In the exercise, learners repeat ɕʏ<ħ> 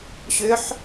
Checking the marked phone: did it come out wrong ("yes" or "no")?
no